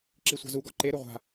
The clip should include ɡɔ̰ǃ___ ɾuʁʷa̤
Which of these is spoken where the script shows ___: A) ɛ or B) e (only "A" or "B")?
B